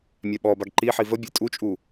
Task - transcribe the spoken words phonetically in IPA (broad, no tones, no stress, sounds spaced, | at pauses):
mʲ a ɓ ɔ b a ɡ ǃ i ħ i v ə bʲ e tʼ u t͡ʃʼ u